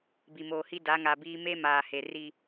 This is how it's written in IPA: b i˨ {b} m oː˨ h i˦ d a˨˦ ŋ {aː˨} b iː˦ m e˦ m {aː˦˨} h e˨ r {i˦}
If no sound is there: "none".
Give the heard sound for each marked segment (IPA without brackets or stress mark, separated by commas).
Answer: none, a˨, aː˨, i˦